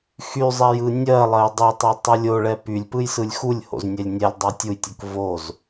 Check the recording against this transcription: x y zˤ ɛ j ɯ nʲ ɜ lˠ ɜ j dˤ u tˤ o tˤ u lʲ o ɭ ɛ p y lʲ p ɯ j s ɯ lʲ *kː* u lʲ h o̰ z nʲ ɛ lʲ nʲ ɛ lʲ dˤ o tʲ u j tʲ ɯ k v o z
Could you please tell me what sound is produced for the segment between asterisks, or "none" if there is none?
x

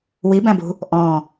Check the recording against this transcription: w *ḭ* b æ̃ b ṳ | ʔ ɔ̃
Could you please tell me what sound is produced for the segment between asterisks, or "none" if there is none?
i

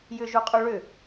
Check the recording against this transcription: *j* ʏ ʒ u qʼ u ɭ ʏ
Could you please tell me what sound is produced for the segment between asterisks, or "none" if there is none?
j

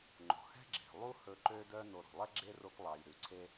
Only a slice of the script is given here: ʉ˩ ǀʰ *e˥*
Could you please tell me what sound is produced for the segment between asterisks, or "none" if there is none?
e˥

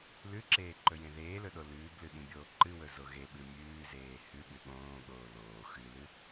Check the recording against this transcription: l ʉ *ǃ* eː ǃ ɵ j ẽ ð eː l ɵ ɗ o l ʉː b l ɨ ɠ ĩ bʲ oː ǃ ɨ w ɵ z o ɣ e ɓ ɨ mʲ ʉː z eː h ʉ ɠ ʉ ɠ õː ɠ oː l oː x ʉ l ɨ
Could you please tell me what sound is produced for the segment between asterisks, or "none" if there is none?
ǁ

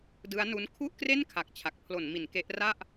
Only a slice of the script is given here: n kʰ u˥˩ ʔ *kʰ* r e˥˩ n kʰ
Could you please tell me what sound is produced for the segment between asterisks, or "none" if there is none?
k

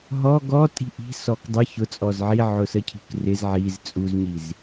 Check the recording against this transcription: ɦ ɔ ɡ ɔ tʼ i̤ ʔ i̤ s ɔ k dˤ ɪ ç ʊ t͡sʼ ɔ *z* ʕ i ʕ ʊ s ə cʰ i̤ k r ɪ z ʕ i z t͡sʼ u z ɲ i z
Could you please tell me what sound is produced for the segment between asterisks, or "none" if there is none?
z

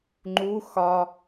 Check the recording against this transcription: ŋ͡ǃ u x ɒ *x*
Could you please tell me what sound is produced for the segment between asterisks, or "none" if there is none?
none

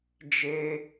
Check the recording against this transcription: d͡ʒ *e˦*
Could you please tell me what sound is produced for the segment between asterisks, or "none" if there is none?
e˦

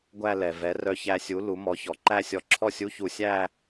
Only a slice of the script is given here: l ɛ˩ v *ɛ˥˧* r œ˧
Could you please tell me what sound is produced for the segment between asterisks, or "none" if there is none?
ɛ˩˥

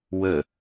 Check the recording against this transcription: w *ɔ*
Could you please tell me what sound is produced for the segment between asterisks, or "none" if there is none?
ə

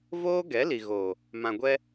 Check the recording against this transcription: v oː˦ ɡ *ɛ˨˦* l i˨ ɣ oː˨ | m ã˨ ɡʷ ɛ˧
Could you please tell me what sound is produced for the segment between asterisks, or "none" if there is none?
ɛ˨˦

